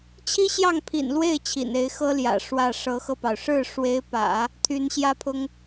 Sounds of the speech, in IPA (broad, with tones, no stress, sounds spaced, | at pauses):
t͡ɕʰ i˥ ɕ j ɑ˥˩ ŋ pʰ ḭ˨˩ n l w e˥˩ ɪ̯ t͡ɕʰ ḭ˨˩ n e˧˥ ɪ̯ x ɤ˥ l j ä̰˨˩ ʂ w ä˥˩ ʂ ɤ˧˥ x ɤ˧ p ɑ˩ ʊ̯ ʂ ɻ̩˥˩ ʂ w e˧˥ ɪ̯ p ä̰˨˩˦ | t̪ʰ y˧˥ n ɕ j ä˥ pʰ ʊ˥ ŋ